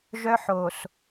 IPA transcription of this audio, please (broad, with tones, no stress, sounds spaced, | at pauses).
ʒ œ˦ ħ o˨ s